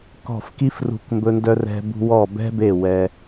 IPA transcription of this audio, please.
kɔ̤˧˩fki˧f rṳ˧˩kmbɵ˧ndœ˧ rɛ̤˧bṳ˧ wɔ˧˩bɛ̤˧be˧˩ wɛ˧

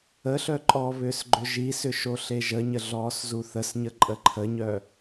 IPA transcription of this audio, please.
əɬœǃʼɔː βʏːsɡ͡ǃʏʒisʏ ʃoɬeʒəɲə ɮɔːszuθəsɲə ǃʼəǃʰəɲœ

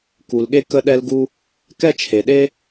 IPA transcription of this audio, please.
ku˩lɠe˥ kə˥ɗɛ˥lɡu˥ | kɛ˥t͡ʃʰe˩ɗe˥

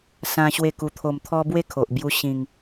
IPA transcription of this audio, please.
sã˦ɕwe˥˧ ku˧t̪ʰo˧mt̪ʰɔ˦ bwe˥˧kʰo˨ʔ bju˧ ɕĩ˨˩ŋ

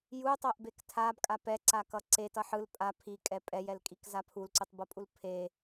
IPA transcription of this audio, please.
jutˤoʔbek tʰabkʼa pɛǀakʌ ǀetʌ ħɯl pʼa pʰikʼɛ pʼɛjɛlkʼikza pʰulǀutˤbʌpʼul pʰe

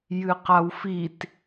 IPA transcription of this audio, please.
jɨqawfit

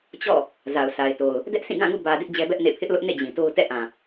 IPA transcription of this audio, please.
t͡ɕɔ̰˦˨ | za˨ʊ̯sʰa˨ɪ̯to˨ʊ̯ | dɛ˦ʔsĩ˦˨ɡã˦˨ŋṵ˦˨ bä˨ dɪ˦ʔd͡ʑɛ˦bɛ˦ʔnḛ˦˨ pʰɪ˦ʔlʊ˦ʔnḛ˦˨ d͡ʑĩ˨to˦ʊ̯ tɛ̰˦˨ʔã˨

